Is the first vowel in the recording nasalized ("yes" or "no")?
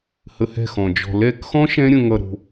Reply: no